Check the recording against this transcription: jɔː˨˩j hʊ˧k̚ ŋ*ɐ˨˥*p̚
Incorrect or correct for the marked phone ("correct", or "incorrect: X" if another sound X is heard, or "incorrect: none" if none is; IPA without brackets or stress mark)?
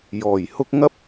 incorrect: ɐ˥